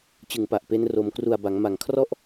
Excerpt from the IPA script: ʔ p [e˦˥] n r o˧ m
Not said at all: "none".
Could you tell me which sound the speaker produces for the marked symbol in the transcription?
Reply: e˦˥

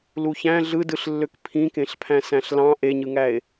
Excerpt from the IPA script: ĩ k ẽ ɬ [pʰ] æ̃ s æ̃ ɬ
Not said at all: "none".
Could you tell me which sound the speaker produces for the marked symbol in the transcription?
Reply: pʰ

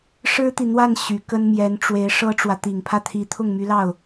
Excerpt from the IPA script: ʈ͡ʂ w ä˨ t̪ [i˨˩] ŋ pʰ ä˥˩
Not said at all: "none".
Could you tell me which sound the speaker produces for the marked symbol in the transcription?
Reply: i˨˩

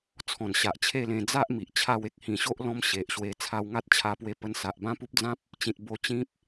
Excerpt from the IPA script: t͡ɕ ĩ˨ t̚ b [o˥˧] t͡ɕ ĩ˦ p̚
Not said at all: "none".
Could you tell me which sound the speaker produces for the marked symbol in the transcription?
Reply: o˧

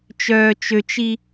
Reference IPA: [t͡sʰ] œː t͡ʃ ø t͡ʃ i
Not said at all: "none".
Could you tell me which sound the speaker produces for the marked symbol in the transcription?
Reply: t͡ʃ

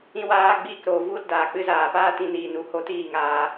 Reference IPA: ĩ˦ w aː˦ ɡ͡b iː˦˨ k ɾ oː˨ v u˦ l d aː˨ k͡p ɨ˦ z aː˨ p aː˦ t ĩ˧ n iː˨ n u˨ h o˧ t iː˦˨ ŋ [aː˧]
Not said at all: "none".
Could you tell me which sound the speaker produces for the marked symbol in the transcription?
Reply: aː˧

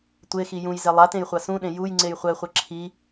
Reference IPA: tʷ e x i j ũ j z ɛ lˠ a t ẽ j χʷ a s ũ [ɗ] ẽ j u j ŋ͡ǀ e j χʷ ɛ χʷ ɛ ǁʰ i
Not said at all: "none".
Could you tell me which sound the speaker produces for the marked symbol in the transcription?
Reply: ɗ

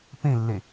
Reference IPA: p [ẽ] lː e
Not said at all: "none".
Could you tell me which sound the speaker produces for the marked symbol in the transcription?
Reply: ẽ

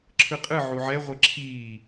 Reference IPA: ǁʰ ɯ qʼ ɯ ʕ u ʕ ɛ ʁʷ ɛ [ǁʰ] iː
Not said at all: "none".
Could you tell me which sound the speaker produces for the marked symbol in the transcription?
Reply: ǁʰ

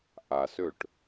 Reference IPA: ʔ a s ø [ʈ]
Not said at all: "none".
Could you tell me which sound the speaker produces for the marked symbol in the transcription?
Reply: ʈ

